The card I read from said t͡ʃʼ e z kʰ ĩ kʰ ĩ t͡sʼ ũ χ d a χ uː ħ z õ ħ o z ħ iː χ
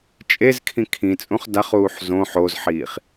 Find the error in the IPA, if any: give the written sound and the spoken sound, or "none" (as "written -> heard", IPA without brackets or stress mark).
none